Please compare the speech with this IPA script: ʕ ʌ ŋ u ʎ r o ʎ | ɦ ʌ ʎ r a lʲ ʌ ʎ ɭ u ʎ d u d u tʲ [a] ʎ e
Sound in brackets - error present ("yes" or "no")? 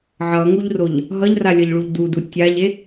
no